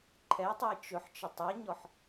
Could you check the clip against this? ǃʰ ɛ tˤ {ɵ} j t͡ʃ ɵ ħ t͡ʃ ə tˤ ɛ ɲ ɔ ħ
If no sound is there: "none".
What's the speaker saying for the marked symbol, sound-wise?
o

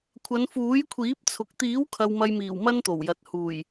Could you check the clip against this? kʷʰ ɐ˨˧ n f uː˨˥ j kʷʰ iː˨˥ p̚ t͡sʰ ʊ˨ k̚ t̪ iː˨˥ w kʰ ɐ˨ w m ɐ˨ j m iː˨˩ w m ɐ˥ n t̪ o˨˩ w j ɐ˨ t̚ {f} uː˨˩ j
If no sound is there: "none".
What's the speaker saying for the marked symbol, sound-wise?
h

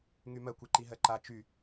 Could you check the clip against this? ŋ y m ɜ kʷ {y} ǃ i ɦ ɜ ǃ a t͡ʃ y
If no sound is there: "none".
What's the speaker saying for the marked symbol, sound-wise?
i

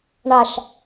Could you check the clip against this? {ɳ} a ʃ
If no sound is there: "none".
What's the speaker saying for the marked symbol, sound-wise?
ɳ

